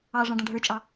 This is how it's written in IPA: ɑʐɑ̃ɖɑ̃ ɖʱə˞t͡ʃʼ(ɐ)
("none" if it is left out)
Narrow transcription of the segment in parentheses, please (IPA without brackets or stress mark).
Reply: ɑ